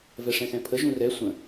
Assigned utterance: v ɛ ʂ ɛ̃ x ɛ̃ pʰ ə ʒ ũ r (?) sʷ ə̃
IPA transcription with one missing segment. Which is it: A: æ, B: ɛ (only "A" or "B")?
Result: B